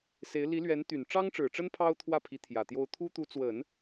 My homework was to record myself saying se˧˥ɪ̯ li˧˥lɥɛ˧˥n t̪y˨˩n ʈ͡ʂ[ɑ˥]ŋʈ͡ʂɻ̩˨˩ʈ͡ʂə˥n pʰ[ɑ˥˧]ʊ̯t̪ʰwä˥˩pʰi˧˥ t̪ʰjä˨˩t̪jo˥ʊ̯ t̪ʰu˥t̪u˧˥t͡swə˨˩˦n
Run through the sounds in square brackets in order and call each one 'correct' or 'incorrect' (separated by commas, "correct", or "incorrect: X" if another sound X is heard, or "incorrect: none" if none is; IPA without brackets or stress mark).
correct, incorrect: ɑ˥